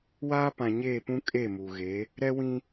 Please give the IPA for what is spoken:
w aː˦ p ã˨ ɲ eː˦˨ p ũ˦ kʼ e˦˨ m u˨ ɣ e˨˦ | ɾ ɛ˦ w ĩ˦

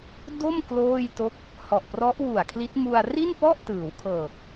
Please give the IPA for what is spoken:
d o˥˩ m k l oː˥˩ j t o˦˥ k̚ | h ɔ˨˩ ʔ p r ɔ˦˥ ʔ w u˨˩ a̯ kʰ l i˦˥ t̚ m u˧ a̯ r i˥˩ n p ɔ˥˩ ʔ t ɯː˩˦ w kʰ ɤː˨˩ k̚

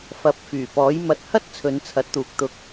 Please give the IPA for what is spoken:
f ɐ˨˥ p̚ f yː˨˩ p ɔː˨˥ j m ɐ˨˥ t̚ h ɐ˥ t̚ t͡sʰ ɵ˨˧ n t͡sʰ ɐ˨˥ t̚ t̪ uː˨ k̚ t̪ ʊ˧ k̚

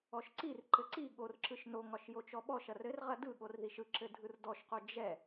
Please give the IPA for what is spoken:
ɔ ʃ ǀ i r ǃ ɘ ǀ i ɠ o r ǁ ɯ ʃ n o ŋ ɒ ʃ j o t͡ʃ ɔ ɓ ɔ ʃ ɐ r ɘ r ʁ ɐ d ɯ ɠ o r ð i ʃ ɯ ǁ ɘ dʱ ɯ r d ɔ ʃ q o d͡ʒ ɛ

